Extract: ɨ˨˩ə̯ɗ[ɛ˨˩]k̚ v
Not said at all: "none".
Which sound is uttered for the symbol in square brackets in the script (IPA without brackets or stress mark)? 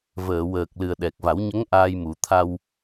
ɛ˨˩